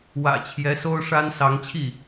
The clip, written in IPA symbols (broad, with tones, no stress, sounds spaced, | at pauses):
w ä̰˨˩ t͡ɕʰ j ɛ˧˥ s o˥ ʊ̯ ʂ a˥ n s ɑ˧˥ ŋ t͡ɕʰ i˥˩